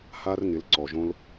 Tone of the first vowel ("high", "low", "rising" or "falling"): high